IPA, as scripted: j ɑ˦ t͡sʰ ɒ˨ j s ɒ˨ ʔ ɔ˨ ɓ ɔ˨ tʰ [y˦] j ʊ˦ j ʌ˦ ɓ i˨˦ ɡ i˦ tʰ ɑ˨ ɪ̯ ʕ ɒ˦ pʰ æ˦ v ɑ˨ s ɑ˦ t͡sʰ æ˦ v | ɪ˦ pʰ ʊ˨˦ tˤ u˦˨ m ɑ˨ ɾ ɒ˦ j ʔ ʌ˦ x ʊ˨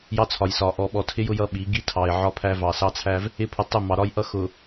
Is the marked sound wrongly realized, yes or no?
yes